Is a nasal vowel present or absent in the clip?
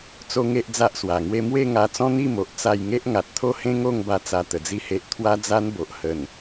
present